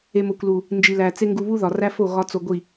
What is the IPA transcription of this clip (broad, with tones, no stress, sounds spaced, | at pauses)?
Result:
e˨ m o˨ kʷ l u˨ | n d͡ʒ i˨ l æ˨ t͡s e˦ ŋ ɡ u˧ β u˦ ð ɒ˨ r æ˦ f o˦˨ ɣ ɒ˧ t͡s o˧ ɡʷ i˦˨